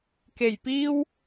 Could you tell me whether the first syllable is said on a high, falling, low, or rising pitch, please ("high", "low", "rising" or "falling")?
low